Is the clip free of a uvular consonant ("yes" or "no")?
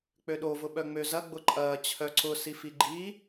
yes